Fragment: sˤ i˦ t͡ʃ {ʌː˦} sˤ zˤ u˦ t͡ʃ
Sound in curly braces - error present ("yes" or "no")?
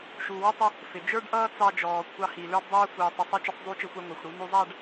yes